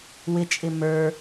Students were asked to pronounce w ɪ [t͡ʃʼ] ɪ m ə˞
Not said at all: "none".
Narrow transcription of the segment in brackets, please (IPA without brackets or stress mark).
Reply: t͡ʃʼ